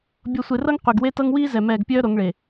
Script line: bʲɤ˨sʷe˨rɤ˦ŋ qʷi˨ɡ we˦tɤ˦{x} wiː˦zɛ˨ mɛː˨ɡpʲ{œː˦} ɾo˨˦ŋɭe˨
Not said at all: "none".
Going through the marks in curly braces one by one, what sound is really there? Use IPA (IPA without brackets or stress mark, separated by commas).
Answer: ŋ, œː˦